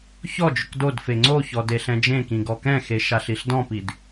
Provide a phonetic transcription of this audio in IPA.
çɔ d͡ʒʊkdodfe ŋ͡ǀoçɔd eɬɛ̃d͡ʒẽkĩ ɡɔkɛ̃xe ʃaɬiɬdɔ̃pid

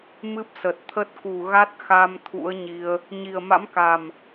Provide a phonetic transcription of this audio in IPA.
mɨ˦˥p̚sə˨˩t̚t̪ʰə˦˥t̚ ku˨˩ɣa˦˥t̚ xa˧m t̪ʰṵ˧˥ə̯ɲi˧ə̯ | ɲi˨˩ə̯ma̰˧˥mka˨˩m

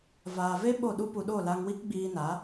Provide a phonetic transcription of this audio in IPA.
vaː˨ve˦ ɓo˦˨ɗu˦pu˧ɗo˦˨ la˧ŋwi˦kɡ͡biː˧ na˨˦

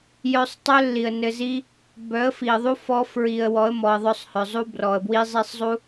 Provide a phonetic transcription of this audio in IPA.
jœ˧sˤtˤœ˦ lːi˨ə̯nɘ˧zi˦ | bœ˨˦ə̯fi˨ə̯ðˤu˦ fɔ˦ fɹi˧ə̯ wɔ˨˦ə̯mɔ˨ə̯ðˤœ˧sˤhœ˨ zˤu˦brɔ˨ə̯bwi˦zˤi˦sˤ zˤu˦

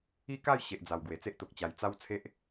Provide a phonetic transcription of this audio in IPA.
i˥˧ka˥˧j ɕe˨ʔd͡za˨˩w ɡwe˨˩t͡se˦ʔ t̪o˨k̚t͡ɕa˨˩j t͡sa˦wt͡sʰe˦ʔ

